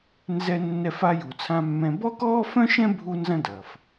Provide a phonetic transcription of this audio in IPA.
n z ɛ˧ nː ɛ˧ f a˧ j u˩ t͡sʰ ã˧ mː ɛ̃˧ b ɔ˥ k ɔː˥ f œ̃˥ ʃ ɛ̃˥ bʱ u˥ n z ɐ̃˥ d ɐ˩ f

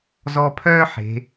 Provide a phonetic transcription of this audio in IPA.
z ɔ˧ pʰ œː˥ ħ e̤˩˧

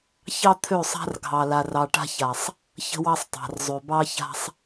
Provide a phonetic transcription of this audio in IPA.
ç ɑ˦ t̪ʰ ø˦˨ sˤ a̤˦ r ɡʱ ɑ˨ l a˨ r ɑ˨ ʈ a̤˦ ç a˨ sˤ | ç ə̤˦ w ɑ˦ sˤ tˤ a̤˨ r zˤ ø˨ b ɑ˦ ç a̤˦ sˤ

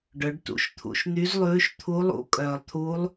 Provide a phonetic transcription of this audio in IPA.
ɖ œ˩˧ ɖ t ṵ˩˧˩ ʃ t̪ʰ ṵ˩˧˩ ʃ n̪ y˧˥ z lˠ ʉː˧˥ ʃ t̪ʰ u˧˥ lˠ ṵ˧˥ kʼ œː˩ lˠ t̪ʰ uː˧˥ lˠ

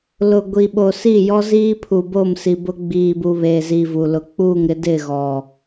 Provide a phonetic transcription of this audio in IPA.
l ʊ˨ ɡʷ i˨ ɓ o˨ s i˦˨ j ɔ˦ z iː˦ pʰ u˨ b o˦˨ m s i˨ b ʊ˦ ɡ͡b iː˨ b u˨ β eː˨ z i˨ v u˨ l ʊ˨ k͡p uː˦˨ ŋ ɾ ɪ˦ d ɪ˦˨ ɣ ɔ˨

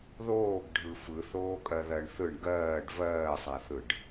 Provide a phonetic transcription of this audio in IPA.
ð oː ɡ ɖʱ ɯ f ɯ θ oː kʼ ɜ ð ɜ ɳ θ ɯ ɳ ɡ ɜː ɖ v ɜː sˤ a θ ɯ ɖ

